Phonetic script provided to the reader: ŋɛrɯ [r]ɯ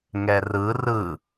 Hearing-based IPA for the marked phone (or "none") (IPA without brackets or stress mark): r